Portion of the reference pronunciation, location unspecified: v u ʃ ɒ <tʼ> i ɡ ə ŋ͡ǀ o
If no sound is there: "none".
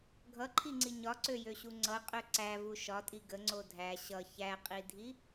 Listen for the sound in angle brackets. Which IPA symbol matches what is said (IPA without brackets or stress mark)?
tʼ